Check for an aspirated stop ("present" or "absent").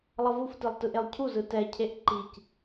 present